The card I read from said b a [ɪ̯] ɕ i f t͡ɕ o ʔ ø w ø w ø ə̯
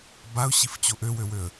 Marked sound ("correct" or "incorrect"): incorrect